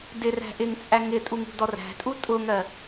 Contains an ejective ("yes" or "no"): yes